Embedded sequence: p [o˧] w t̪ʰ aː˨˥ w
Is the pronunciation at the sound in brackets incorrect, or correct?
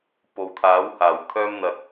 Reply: incorrect